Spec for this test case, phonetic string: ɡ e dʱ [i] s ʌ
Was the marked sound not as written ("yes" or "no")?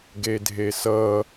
yes